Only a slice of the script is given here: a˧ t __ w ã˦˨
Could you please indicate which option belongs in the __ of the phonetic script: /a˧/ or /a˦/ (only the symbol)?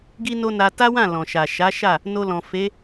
a˦